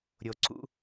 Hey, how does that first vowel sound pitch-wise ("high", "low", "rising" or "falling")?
low